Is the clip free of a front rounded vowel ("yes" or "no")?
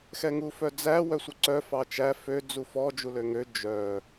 no